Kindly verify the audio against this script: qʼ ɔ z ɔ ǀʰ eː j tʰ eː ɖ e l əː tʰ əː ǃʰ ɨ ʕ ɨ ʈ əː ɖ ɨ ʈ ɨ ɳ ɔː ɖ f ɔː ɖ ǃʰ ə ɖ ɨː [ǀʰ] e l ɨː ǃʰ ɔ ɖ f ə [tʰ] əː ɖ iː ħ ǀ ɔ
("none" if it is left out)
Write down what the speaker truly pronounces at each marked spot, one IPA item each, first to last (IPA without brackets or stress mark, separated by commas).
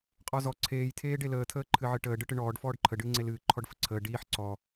ŋ͡ǀ, ǀʰ